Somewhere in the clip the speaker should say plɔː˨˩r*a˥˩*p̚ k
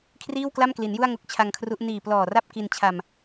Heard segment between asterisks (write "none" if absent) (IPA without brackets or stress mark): a˥˩